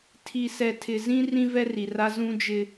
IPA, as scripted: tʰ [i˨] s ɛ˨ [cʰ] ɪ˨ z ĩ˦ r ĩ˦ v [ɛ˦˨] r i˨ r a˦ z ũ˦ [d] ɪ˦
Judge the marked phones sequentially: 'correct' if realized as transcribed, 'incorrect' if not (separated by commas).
correct, incorrect, incorrect, incorrect